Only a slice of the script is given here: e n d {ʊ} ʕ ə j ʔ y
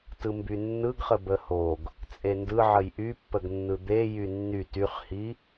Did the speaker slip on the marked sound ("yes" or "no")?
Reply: yes